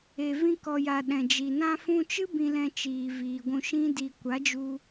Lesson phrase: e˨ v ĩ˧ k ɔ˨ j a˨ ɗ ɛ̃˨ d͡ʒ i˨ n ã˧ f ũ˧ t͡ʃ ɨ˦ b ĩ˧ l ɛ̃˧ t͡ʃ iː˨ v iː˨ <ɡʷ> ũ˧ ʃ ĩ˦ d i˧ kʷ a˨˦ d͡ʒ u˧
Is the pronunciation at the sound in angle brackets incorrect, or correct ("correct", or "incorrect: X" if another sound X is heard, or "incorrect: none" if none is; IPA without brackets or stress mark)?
correct